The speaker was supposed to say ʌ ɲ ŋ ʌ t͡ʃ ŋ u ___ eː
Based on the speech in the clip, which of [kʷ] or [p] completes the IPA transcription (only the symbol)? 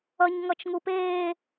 p